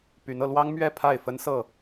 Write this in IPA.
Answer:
p y˨˦ n ɤ˧ l w ɑ˦ ŋ m ɥ ɛ˥˨ pʰ a˥˨ ɪ̯ f ə˦ n s ɤ˥˨

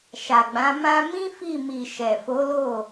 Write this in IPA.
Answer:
ʃ a˨ ɡ͡b ã˨˦ m ã˧ m ĩ˦ f i˦˨ m i˨ ʃ ɛ˨ f o˨˦ l o˦˨

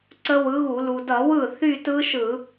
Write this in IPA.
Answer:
ǀ ə˦˥ w ɯ˨˥ ɣ u˧˩˧ l u˩ d ʌ˧˩˧ w ɯ˥˩ θ y˥˧ t ɯ˦˥ ʃ ɯ˧˩˧

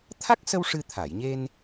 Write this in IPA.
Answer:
t̪ʰ a˦˥ k̚ s ə˧ w ʂ ɨ˧ t̪ʰ a˨˩˨ j ɲ e˧ n

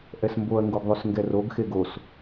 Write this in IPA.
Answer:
ʔ ɛ s m b o ɐ̯ ŋ ɡ o ɡ ðˤ u s ŋ ɡ ɛ r o ɡ x e ɡ o s

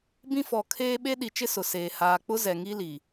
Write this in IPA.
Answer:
b ĩ˦ f ɔ˨ kʰ eː˦ ɓ e˦ ɗ i˨ t͡ʃ ɪ˦ s ʊ˨ s eː˨ h aː˨ k͡p ʊ˦ z ɛ˨ ŋ i˦ l i˨

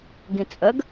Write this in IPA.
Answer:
ɡ ĩ t͡sʼ ə ɡ

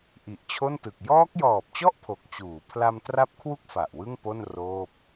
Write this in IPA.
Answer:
ʔ i˨˩ ʔ t͡ɕʰ o˥˩ n t ɯ˨˩ k̚ j ɔː˦˥ k̚ j ɔː˨˩ p̚ t͡ɕ ɔ˥˩ ʔ pʰ o˨˩ k̚ t͡ɕ uː˩˦ pʰ l a˧ m t r a˦˥ p̚ kʰ w u˥˩ k̚ f a˨˩ ʔ w ɯ˥˩ ŋ p o˥˩ n r oː˥˩ p̚

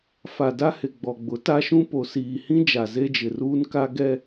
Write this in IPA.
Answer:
f a˨ d a˦ h ɪ˨ ɡ͡b ɔ˨ ɡ͡b ʊ˨˦ t a˦ ʃ ũ˦ p o˨ s iː˨ h ĩ˦ d͡ʒ a˨ z e˦ d͡ʒ ɪ˨ r uː˦ n k a˦ ɡ ɛ˦

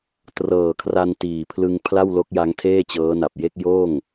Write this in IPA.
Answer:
t r ɤː˨˩ kʰ r a˧ n t iː˨˩ pʰ l ɯ˧ ŋ pʰ l a˥˩ w l o˦˥ k̚ j a˦˥ ŋ tʰ eː˥˩ t͡ɕ ɤː˦˥ n a˨˩ p̚ j e˥˩ k̚ j oː˥˩ ŋ

